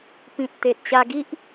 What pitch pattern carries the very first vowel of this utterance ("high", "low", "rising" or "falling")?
low